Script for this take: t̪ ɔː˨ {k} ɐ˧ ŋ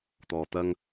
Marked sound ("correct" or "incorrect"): incorrect